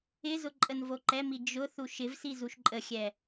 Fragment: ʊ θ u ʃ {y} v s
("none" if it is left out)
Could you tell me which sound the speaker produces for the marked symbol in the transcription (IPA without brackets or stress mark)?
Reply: ɪ